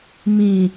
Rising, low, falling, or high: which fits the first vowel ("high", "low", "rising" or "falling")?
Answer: low